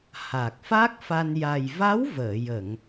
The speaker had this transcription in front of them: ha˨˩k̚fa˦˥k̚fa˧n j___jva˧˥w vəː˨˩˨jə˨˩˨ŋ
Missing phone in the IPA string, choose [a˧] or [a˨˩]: a˨˩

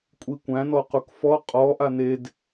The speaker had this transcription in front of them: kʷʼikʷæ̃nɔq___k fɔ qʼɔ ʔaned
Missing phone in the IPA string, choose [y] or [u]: u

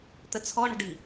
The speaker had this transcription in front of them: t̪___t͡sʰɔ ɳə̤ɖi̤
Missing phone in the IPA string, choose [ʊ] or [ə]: ə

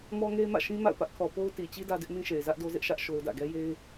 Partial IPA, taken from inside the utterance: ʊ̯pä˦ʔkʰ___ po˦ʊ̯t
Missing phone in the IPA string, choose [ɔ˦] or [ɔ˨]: ɔ˨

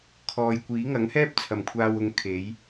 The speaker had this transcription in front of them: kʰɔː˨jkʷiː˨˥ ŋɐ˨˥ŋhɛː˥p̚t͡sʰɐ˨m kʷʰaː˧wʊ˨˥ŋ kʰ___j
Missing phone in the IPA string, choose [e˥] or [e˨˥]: e˨˥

